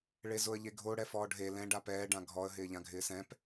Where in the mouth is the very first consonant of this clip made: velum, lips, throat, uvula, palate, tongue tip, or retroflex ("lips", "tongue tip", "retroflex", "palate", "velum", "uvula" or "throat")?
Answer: retroflex